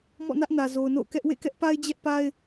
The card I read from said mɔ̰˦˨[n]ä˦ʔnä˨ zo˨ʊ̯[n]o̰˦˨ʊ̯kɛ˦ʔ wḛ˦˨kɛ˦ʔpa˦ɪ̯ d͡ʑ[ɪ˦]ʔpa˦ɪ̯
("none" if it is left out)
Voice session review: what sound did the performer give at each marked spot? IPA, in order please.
n, n, ɛ˦

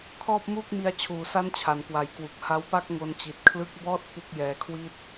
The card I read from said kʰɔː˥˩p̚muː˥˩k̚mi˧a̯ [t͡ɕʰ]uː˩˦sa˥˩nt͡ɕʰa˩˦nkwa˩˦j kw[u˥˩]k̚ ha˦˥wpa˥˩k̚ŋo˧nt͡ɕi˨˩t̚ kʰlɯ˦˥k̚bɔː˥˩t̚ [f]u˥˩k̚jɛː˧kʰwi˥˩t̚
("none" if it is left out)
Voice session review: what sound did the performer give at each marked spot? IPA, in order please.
t͡ɕʰ, u˨˩, f

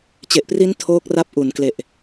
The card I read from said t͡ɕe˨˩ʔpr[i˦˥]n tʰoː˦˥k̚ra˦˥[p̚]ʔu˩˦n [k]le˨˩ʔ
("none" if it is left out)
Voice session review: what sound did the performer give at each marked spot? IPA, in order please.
i˦˥, p̚, k

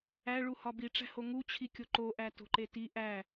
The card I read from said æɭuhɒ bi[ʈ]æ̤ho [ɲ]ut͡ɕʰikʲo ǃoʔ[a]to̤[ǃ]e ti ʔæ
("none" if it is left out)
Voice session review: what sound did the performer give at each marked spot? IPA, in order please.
ʈ͡ʂ, ŋ, æ, ǃ

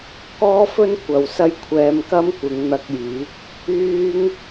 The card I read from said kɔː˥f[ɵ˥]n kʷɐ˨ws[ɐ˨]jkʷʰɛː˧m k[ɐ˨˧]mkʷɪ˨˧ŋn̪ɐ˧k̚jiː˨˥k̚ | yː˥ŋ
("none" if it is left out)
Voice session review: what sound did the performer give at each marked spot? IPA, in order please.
ɵ˥, ɐ˥, ɐ˥

